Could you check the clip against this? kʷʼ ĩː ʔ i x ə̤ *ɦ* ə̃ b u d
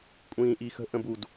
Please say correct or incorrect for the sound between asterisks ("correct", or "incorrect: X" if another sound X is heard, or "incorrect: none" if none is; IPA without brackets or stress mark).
incorrect: ʔ